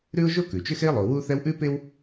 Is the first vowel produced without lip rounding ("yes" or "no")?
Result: no